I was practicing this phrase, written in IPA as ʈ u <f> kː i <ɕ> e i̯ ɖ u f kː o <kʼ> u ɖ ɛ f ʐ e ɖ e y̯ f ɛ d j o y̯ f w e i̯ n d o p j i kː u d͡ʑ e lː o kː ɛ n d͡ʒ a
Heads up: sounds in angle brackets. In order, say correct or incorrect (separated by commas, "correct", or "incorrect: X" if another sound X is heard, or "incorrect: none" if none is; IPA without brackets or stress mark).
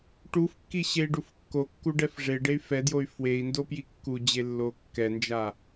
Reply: correct, correct, incorrect: kː